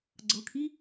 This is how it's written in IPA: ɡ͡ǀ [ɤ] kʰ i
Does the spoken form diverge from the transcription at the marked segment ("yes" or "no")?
no